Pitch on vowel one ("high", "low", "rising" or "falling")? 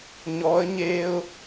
rising